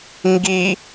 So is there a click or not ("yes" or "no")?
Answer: no